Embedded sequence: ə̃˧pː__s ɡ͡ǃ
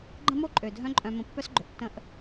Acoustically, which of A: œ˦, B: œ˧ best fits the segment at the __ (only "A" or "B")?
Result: A